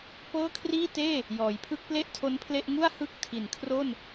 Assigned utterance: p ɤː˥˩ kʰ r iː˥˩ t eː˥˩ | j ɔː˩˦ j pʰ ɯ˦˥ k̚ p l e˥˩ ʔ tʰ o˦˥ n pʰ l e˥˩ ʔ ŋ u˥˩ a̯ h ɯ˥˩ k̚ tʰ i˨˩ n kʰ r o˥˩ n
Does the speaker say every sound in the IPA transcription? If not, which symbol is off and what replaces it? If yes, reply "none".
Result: none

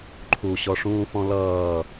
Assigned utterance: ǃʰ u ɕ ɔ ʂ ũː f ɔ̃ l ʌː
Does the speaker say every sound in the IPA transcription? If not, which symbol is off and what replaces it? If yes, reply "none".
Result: none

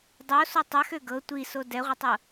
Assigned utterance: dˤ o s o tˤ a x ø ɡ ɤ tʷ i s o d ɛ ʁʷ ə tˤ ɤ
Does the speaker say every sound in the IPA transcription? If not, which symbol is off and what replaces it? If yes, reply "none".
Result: none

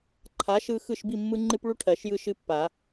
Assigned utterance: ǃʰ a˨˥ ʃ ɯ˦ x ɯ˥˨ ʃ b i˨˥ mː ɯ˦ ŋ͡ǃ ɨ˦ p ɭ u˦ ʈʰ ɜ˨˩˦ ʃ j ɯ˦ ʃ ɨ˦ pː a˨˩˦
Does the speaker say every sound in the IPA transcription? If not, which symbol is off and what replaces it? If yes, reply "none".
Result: i˨˥ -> i˥˨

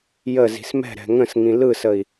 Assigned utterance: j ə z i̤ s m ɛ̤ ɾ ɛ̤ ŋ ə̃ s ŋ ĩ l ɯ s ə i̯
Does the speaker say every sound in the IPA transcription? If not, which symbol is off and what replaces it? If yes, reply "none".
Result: none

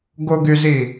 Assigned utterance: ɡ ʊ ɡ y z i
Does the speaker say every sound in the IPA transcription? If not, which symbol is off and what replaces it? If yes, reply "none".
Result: none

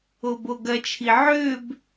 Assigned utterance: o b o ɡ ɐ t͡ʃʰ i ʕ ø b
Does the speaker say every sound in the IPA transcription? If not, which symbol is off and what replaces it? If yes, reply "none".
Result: none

